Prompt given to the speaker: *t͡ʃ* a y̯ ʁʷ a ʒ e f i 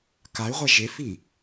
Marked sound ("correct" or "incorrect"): incorrect